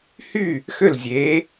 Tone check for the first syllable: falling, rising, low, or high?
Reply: falling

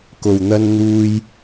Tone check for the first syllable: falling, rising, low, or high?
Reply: low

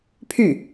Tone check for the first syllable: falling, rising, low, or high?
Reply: falling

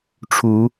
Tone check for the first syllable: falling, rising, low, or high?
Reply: rising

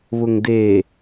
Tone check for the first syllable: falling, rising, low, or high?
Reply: low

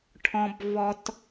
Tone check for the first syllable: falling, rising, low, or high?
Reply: high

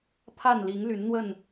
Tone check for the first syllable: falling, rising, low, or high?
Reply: falling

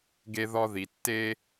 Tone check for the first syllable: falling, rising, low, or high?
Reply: high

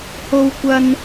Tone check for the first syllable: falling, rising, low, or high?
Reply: high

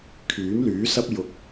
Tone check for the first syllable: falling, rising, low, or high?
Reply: rising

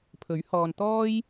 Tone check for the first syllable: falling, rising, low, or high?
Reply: rising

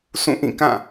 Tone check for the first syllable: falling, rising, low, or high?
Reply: falling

